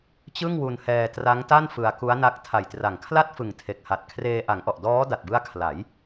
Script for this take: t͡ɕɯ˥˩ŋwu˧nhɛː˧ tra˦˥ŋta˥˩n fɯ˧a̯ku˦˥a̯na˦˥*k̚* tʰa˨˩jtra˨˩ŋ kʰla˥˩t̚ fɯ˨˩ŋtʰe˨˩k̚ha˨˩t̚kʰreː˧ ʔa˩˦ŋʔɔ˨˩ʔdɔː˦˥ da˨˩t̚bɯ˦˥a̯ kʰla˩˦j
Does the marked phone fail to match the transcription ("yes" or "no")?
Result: no